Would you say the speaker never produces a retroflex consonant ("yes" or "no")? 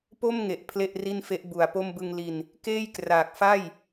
yes